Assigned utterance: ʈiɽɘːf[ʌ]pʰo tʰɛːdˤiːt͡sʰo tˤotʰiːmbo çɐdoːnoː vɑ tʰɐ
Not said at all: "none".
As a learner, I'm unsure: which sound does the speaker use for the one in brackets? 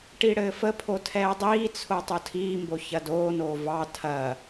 ə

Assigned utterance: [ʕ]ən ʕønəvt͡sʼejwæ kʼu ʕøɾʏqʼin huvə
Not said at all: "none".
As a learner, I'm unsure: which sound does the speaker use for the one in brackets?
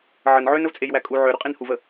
ʕ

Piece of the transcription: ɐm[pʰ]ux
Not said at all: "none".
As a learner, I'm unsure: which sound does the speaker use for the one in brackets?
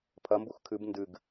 b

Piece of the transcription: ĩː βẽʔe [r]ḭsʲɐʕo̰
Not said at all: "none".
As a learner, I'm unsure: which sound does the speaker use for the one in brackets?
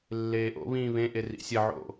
r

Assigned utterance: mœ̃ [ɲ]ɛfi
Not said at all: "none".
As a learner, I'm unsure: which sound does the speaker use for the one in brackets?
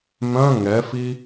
ŋ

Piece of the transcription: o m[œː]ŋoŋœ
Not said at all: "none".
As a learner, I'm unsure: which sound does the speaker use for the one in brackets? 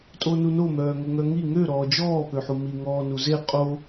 œː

